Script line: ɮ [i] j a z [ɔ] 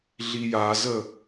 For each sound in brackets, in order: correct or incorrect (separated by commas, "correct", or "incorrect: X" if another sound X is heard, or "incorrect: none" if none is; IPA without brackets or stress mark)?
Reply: correct, incorrect: ə